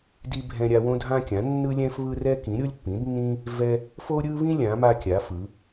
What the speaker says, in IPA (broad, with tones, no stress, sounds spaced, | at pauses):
d i˦ bʱ ɛ̃˦ ɾʲ a˦ w õ˦ dʱ ã˦ kʲ ã˩˥ nː ɯ˦ lʲ ɛ̃˦ f β ɯ˦ r ɛ˦ k ĩ˩˥ ɾʲ o˦ lʲ pː ĩ˩˥ d nː ĩ˦ | v ɛ˦ | f o˦ ɾʲ ɯ˦ β ĩ˦ lʲ ã˩˥ m a˦ kʲ a˩˥ f ɯ˩˥